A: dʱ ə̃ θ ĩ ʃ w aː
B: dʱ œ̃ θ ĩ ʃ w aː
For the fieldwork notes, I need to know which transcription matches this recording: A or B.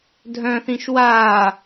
B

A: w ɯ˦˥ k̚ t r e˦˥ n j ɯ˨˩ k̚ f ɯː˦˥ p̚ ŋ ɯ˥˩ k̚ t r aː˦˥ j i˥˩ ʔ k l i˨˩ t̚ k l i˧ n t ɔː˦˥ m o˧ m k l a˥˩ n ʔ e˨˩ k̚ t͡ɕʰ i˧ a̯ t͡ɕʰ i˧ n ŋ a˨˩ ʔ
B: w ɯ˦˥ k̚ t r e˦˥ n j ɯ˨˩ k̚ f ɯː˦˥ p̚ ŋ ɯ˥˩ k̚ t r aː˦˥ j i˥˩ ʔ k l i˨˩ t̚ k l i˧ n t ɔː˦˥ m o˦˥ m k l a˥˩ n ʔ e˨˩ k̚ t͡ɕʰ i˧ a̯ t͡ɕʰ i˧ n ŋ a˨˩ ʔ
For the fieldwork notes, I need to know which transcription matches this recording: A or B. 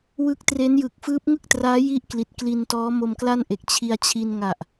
A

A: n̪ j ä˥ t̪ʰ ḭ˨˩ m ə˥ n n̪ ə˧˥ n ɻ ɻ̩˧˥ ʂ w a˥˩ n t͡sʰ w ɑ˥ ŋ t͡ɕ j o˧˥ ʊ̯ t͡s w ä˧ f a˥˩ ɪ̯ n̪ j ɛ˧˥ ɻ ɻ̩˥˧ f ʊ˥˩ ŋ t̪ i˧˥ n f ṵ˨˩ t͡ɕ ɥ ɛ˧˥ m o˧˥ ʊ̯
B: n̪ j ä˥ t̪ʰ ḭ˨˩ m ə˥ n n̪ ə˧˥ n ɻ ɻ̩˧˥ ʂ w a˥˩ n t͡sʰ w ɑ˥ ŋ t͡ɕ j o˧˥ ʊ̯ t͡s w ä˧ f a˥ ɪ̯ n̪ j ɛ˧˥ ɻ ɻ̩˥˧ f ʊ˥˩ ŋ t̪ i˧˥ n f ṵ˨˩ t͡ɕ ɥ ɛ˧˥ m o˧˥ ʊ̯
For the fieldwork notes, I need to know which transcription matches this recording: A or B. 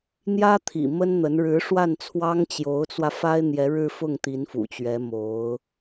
B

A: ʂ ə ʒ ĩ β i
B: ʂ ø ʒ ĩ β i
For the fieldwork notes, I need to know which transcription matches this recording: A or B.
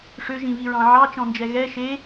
B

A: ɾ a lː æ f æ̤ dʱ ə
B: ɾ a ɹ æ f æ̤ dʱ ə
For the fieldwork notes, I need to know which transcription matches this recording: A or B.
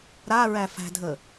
B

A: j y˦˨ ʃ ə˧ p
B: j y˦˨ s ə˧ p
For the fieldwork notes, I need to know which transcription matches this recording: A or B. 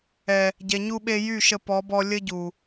A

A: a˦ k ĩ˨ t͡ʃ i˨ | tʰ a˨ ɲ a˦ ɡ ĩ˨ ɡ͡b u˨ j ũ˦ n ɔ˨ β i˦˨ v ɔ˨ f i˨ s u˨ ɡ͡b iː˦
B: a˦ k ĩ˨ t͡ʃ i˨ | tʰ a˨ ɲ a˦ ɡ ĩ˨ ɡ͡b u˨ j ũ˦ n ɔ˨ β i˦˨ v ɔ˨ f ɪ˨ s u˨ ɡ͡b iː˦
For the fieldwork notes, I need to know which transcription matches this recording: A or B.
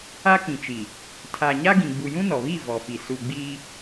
A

